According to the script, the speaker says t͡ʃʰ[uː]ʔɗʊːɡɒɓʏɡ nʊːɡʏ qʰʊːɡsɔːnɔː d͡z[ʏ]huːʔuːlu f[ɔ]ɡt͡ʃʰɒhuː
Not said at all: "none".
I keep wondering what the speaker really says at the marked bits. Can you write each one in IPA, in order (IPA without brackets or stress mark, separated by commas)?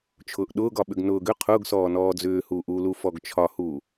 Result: ʊː, ʏː, ɔ